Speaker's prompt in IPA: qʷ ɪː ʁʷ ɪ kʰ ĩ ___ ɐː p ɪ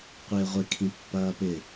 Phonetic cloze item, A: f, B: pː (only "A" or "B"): B